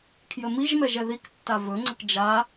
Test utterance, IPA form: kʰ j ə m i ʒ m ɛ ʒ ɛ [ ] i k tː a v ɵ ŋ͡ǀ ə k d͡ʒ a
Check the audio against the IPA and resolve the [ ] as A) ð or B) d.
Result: A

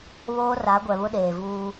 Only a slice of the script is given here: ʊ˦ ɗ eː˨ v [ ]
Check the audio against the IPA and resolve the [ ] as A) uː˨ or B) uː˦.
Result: B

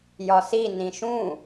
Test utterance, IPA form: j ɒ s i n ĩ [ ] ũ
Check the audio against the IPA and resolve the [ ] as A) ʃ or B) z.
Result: A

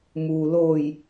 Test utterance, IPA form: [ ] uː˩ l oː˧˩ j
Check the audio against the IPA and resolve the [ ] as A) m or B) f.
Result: A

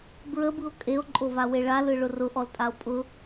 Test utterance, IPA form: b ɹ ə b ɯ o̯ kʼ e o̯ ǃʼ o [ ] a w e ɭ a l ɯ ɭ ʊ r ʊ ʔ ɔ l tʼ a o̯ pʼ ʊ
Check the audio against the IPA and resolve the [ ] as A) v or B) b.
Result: A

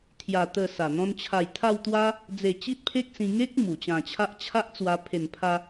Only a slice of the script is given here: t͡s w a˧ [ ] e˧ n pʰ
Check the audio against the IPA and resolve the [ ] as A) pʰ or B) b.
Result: A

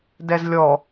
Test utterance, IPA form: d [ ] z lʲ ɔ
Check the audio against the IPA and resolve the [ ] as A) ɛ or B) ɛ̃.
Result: A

